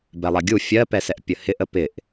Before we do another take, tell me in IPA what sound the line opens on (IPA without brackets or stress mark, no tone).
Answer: b